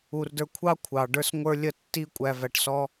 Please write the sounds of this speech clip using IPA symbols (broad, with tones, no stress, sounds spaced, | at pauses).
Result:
u˨ r d ə˞˧ kʷʰ ɑ˦ kʷʰ ɑ˨ ɖ ə˞˧ s ŋʷ ə˞˧ lʲ ə˧ tː i˦ kʷʼ æ˧ v æ˧ ʈ s ɔ˦